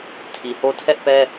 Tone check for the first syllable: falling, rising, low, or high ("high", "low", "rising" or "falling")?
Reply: low